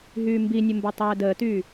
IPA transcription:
ɦyːmbinʲə mbotˤɛːdəːtyː

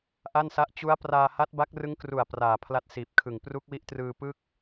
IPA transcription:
ʔa˥˩nsa˦˥ʔ t͡ɕu˦˥a̯ praː˧ha˦˥t̚ba˦˥k̚ rɯ˦˥ŋkru˨˩a̯ praː˨˩pʰla˦˥t̚siː˨˩p̚kʰɯ˨˩ŋ pru˦˥k̚wi˦˥ʔtrɯː˧ pɯ˥˩k̚

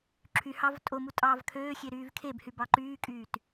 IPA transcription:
ǁʰyhɑv tʼomu tʼɑːvkʰøːxʲe ɾyːvkʰebhy bɑǃyːkʼyːt

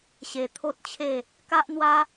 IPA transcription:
ɕe˧ t̪ʰo˦t̚t͡ɕʰe˥˧ | ka˦ʔn̪wa˦

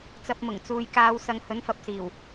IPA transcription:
t͡sɐ˧p̚mʊ˨˩ŋ t͡suː˨jkaː˨˧wsɐ˨˧ŋ hɵ˨˥nfɐ˨p̚siː˨˩w

